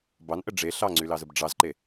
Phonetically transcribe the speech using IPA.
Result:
b ɑ n ʔ ə ɖ͡ʐ e ɬ ɑ ŋ͡ǀ y l ɑ z ə b ɖ͡ʐ ɑ z ǃ e

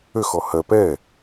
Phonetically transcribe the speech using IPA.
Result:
ø x ɔ h ɜ p ɛ

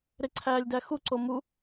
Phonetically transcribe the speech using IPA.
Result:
ɾ ɪ ǀʰ æː lʲ d æ x u ǀ o m u

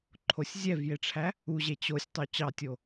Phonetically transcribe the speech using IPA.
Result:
ǃʰ o sʲ zʲ ɛ v j e ʈ͡ʂʰ æ | u ʑ e t͡ɕ o sʲ tˤ o t͡ɕ ɑ tʲ o

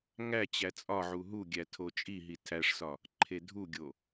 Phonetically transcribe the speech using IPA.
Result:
ŋ æ t͡ɕ æ t͡sʼ ɒ ʕ u ɦ u ɡʲ æ tʰ o t͡ʃʼ i ɦ i tʰ æ ʂ s ɒ | ǃʰ e dʱ u ɡʲ o

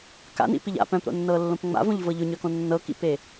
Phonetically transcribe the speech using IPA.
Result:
k a̰ n ḭ p i ʎ a̰ p œ̃ p ɾ o̰ nː ɤ lː õ p ŋ͡m a̰ v õ ʎ v ɤ ʎ ʊ ɲ œ k õ nː ɤ k ḭ p e

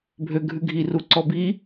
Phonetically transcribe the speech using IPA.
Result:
bʱ ø ɡʱ ʉ ɡʱ i r u ǀ ɔ b i

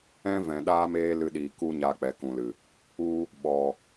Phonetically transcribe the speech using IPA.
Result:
ɛ̃˦ v ɛ̃˨ ɗ aː˦ m eː˦ l ɨ˧ ɗ iː˨ k u˦ ɲ a˧ k͡p ɛ˨ k ũ˨ l ɨ˨ | u˧ | ɓ ɔ˨

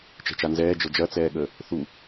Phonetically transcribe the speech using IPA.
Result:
t͡ʃ ɛ̤ t͡ʃ a n z ɛː d͡ʒ ɤ d͡ʒ ɐ t͡s ɛː ɠ əː | θ u

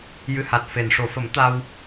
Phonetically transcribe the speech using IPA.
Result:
j ɨ˧˥ h a˨˩ t̚ f e˨˩ n ʂ o˨˩˨ f ə˨˩˦ m t̪ a˧ w

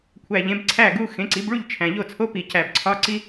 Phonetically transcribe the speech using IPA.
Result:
kʷʰ æ˨˩ ʎ ẽ˩˥ b ǀʰ æ˥˩ ɡ u˧˥˧ x ẽ˩˥ ǀ i˩˥ b ɭ u˥˩ ʎ t͡ʃʰ æ̃˨˩ ʎ o˥˩ t͡sʰ o˧˥˧ p i˨˩ c æ˨˩ b ǀʰ ɒ˧˥˧ ǀ i˥

